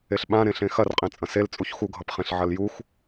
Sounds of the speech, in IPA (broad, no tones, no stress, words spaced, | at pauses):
eɬɓã ɾẽɬẽxɐr qʼẽt͡sʼɐ̃sel t͡sʼuçxu ɡʱʌpχẽɬʕɐljux